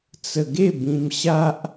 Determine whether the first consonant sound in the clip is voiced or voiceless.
voiceless